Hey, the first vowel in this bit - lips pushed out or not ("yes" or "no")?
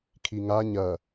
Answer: no